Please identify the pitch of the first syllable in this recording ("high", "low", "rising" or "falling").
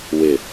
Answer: low